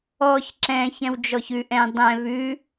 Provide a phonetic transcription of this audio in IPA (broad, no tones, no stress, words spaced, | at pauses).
ɔç ǁɛ̃ çɛ̃wd͡ʒɔçʉʔ ɛ̃ dˤɛ̃ βʉ